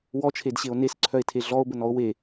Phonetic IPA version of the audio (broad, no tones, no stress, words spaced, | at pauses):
wɔt͡ʃʰedɕeo̯ nesǀʰœe̯tʰe ɮɔo̯bənɔo̯ we